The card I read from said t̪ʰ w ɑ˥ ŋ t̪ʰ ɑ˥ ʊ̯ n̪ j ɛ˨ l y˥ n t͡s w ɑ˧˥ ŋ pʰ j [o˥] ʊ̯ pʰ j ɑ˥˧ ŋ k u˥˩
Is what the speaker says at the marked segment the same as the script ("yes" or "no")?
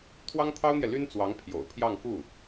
no